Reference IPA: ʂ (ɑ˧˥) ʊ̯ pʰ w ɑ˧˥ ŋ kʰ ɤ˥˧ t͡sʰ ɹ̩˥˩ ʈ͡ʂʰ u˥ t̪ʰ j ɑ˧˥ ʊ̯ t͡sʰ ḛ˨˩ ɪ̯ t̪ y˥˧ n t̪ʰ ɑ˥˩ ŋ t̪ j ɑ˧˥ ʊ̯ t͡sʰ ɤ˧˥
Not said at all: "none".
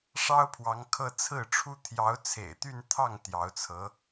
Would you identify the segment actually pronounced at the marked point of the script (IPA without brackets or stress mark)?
ɑ˥